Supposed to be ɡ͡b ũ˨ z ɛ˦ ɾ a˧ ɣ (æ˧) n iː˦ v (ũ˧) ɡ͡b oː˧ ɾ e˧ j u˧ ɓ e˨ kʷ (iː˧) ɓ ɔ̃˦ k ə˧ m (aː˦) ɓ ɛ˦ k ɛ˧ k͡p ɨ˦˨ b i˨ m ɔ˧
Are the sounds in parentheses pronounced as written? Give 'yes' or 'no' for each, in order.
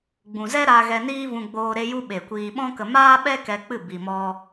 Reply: no, yes, yes, yes

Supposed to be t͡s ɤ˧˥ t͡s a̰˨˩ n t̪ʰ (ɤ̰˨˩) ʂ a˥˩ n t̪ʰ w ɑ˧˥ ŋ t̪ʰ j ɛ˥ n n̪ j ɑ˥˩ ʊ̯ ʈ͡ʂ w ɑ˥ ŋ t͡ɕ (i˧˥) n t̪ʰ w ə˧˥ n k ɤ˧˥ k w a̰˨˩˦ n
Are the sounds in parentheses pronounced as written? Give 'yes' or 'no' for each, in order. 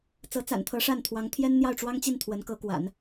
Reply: no, no

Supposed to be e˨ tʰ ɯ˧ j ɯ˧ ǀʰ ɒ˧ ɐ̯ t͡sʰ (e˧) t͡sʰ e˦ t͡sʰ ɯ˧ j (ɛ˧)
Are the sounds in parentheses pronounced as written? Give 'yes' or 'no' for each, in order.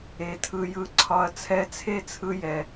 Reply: no, no

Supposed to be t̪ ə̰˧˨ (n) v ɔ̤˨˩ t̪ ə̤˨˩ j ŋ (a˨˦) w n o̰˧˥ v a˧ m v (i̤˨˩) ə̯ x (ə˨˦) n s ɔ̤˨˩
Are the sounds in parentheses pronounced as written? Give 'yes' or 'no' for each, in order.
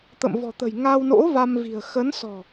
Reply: no, no, yes, yes

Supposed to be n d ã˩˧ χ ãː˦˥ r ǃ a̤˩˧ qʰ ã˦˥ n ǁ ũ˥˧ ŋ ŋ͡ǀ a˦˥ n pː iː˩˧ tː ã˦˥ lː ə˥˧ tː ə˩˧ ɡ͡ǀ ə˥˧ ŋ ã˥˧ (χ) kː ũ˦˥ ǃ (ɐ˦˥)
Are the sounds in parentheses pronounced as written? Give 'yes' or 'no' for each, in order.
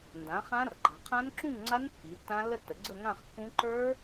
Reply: yes, no

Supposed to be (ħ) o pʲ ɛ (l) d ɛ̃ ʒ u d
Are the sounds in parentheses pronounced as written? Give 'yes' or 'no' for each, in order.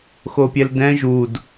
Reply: no, yes

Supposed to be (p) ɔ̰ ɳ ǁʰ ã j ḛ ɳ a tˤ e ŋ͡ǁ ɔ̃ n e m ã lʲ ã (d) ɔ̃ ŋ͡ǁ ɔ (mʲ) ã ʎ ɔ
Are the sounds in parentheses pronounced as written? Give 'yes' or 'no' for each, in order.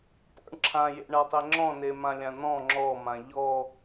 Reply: yes, no, no

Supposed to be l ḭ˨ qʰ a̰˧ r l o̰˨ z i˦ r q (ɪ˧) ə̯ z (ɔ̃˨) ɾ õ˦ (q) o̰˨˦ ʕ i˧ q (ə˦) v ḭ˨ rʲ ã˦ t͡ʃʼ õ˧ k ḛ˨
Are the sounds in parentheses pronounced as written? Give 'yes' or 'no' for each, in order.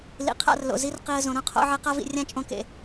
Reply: no, no, no, no

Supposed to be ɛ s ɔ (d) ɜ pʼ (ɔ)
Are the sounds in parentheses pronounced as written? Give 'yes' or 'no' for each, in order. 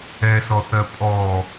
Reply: no, yes

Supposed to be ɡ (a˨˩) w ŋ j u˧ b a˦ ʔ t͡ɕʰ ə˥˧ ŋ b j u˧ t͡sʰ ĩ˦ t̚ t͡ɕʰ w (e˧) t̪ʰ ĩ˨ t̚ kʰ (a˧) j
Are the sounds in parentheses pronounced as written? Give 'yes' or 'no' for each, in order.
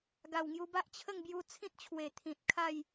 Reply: yes, no, no

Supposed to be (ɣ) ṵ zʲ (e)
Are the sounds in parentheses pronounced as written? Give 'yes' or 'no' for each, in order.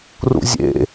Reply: no, no

